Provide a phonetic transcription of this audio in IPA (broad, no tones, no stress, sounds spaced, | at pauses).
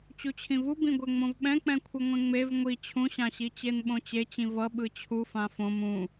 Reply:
t͡ɕ u t͡ɕʰ ĩ v u b ĩ ɡʷ ɛ ŋ͡m õ v ɓ ɛ̃ k͡p ɛ̃ kʷʰ ɯ ŋʷ ẽ ŋ͡m e v ŋʷ i t͡ɕʰ ũ ɕ ã ɕ i t͡ɕ e n ɓ õ t͡ɕ e t͡ɕ ĩ v ʌ ɓ ɯ t͡ɕʰ u f ã f õ m ũ